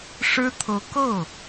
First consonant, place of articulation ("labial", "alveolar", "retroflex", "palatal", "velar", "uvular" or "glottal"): retroflex